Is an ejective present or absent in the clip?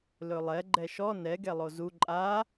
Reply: present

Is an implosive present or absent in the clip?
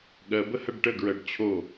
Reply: present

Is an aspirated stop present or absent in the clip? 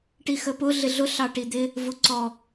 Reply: absent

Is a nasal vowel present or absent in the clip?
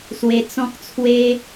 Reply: present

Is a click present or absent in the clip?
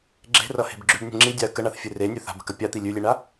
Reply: present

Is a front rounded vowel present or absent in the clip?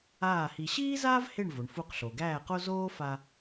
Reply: absent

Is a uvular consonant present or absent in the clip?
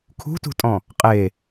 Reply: present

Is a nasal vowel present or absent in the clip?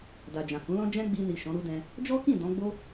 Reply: present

